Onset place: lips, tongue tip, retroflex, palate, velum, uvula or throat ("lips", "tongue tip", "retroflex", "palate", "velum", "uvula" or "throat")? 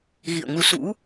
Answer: velum